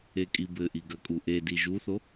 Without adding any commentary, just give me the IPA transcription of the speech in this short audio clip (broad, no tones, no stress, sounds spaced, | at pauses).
e kʼ i b ɘ ʔ i ɡ ɐ kʼ u ʔ e d i ʒ u θ o